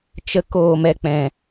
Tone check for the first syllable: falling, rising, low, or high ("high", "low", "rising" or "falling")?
high